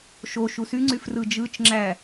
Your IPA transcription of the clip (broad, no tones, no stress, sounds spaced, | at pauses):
ʃ o ʃ u s y ŋ͡ǀ y f r ɯ d͡ʒ ɯ t͡ʃ ŋ͡ǁ æ